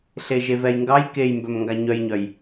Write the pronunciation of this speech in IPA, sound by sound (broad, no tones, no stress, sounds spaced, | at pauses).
ɬ e ʒ e v ɛ j ŋ ɡ ɑ j k e j m b œ m ŋ ɡ a ɲ œ j ɲ œ j